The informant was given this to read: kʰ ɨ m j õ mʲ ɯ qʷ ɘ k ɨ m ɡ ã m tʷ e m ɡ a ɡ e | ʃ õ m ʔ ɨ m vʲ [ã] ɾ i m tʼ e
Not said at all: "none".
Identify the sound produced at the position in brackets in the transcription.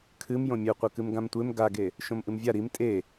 a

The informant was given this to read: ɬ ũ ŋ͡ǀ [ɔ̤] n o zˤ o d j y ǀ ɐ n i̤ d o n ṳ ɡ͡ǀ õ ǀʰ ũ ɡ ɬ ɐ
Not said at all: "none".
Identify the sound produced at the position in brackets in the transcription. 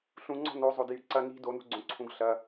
ɔ̤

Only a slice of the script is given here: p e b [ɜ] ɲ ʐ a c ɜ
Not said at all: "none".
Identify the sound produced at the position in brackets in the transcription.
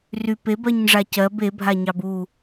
ɜ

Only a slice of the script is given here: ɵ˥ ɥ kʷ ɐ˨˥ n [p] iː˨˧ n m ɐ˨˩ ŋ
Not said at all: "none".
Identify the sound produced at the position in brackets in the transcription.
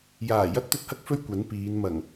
p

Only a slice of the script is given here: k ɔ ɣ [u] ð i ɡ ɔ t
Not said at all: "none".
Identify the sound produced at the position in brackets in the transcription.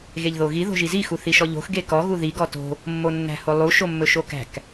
u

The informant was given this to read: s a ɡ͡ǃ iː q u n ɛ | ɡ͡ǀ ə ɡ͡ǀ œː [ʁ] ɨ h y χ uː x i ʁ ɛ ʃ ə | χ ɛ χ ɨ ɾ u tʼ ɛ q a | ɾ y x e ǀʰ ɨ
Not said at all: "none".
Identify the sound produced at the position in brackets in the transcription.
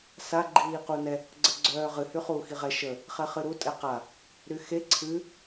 ʁ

